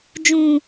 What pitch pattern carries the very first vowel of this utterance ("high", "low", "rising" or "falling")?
high